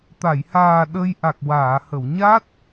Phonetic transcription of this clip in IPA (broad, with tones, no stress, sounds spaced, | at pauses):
t̪ a˨˩˨ j h aː˨˩ ɗ ə˧ j ʔ a˨˩ k̚ w aː˨˩˨ h ə˨˩˨ w ɲ a˦˥ t̚